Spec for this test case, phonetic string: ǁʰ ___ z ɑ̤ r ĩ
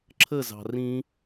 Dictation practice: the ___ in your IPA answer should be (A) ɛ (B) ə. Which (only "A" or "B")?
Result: B